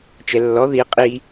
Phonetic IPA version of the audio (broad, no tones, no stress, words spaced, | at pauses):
t͡ʃɛlːɔ ði qʼi